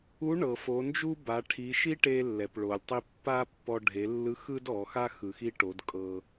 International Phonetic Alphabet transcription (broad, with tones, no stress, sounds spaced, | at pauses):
u˧˥ ɳ ɤ˩ f o˩˧ n d͡ʒ u˥ b a˩˧ ʈʰ i˩˧ ʃ i˥ ʈ e˧ lː ɛ˩ p ɭ o˩ lʲ tˤ i˧ pː a˥ pː ɔ˧ ɖʱ e˩˧ lː ɯ˧˥ x ɯ˥ d ɔ˩˧ x a˥ x ɯ˩ x i˥ ʈ o˩˧ d kʼ ɤ˧